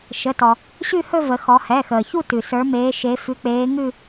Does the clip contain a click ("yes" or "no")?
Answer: no